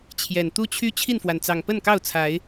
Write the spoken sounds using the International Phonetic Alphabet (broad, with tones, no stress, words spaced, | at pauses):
t͡ɕʰjɛ˨˩nt̪u˦t͡ɕʰy˦ t͡ɕʰi˥˨nfwa˩nt͡sɑ˨˩ŋ pə˥˨nkɑ˥˨ʊ̯t͡sʰa˨˦ɪ̯